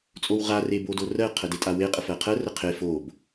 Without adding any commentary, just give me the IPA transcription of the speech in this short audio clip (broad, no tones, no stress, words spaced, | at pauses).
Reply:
t͡sʼowʁa rebodorɜ qʰədetʼawe qʼəfɜqʰɜ rəqʰe fob